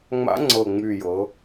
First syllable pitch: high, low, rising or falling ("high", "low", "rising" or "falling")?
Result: rising